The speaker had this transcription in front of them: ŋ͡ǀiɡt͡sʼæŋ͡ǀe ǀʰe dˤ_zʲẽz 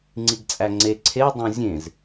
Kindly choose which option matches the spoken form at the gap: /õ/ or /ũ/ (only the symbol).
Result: õ